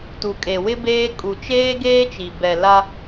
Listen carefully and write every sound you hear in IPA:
t u˨ kʼ e˨ w ɪ˦ b eː˦ kʼ u˨ t͡ʃ eː˦ ɡ eː˦ t͡ʃ i˨ b ɛ˨ l a˦

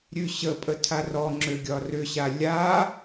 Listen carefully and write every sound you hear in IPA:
ɾʲ ʉ ɕ ə pʼ ə tʰ a r ɔ ŋ͡ǁ ø ɡʲ ɒ r ʏ ɕ a lʲ a

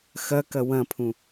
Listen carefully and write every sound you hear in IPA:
x ɐ k ɐ w ɐ̃ pʰ ũ

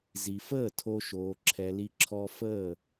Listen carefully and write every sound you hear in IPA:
z i˨ f əː˦˨ tʰ o˧ ʃ oː˨ ǁʰ ɛ˨ l i˧ ǁʰ ɔ˧ f əː˦˨

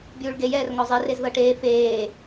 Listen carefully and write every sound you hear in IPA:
bʲ uː ɭ ɡ e j ɛː r ŋ ɔ zˤ e r e z ð ɤ ʈ eː f eː

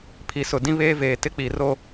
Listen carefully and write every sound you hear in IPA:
pʰ i˨ s ʊ˨ d ĩ˦ β eː˦ v eː˨ t ɪ˦ k͡p i˨ r o˦

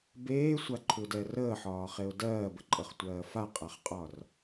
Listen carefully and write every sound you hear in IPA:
b eː sʷ a ǃʰ u d ɛ r əː ħ ɒː χ e ʊ̯ d ɜː b ə ǃʼ ɤ χ tʷ ɜː f a qʼ a χ qʼ ɒ r

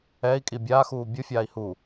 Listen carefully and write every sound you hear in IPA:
ɛ i̯ kʼ i bʲ aː x uː bʲ ɯ fʲ aː i̯ h u

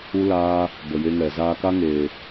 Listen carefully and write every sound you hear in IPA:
u˦ l aː˦ | b ə˨ j e˧ ŋ ɛ˨ z aː˧ k a˦ ŋ eː˨

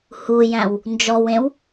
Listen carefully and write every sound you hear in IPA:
h u j æ̃ w | n d͡ʒ ɔ w ẽ w

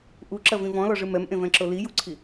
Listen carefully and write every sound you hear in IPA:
ʔ u ǁ ɐ v ĩ v ɔ̃ l ɔ ʐ ɨ m ɛ m ʔ ẽ v ɛ̃ ǁ o l i j u ǀʰ i

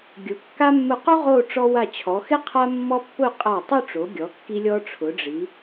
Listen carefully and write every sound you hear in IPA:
ɡʲ ʊ˩˧ kː a˥ mː ʊ˧˩ q u˥ ʁ o˥˧ ʈ͡ʂ ɔ˧ w a˧˩ t͡ɕʰ ɔ˩˧ x ɪ˥ qʰ a˥ mː ɔ˥ pː ʊ˥˧ qʼ a˧˩ tˤ ʊ˥˧ ʈ͡ʂ o˩˧ ɡʲ ɔ˩˧ kː i˧ lʲ ɔ˧ ʈ͡ʂʰ ʊ˩˧ ɖ͡ʐ i˩˧

